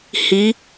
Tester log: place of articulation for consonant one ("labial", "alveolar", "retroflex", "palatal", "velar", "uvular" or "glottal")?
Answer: glottal